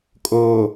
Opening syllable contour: low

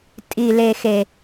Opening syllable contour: low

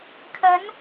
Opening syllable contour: rising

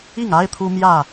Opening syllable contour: falling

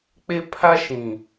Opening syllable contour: high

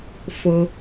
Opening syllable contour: low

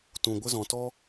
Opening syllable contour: low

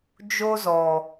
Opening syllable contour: high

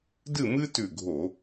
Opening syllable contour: falling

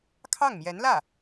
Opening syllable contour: falling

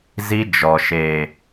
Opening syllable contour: high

